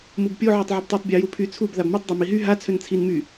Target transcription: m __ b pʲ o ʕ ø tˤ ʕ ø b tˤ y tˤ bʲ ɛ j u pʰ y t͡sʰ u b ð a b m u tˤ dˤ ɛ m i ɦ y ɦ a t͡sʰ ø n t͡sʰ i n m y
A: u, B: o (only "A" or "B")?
A